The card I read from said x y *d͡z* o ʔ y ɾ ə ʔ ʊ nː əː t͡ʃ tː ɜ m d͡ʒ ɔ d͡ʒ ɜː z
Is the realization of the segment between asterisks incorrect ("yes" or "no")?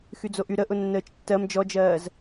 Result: no